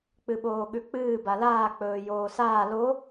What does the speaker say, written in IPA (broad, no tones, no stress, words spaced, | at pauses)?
k͡pɨɓoːɠʉk͡pɨː balaː k͡pɵːjoːsaː lo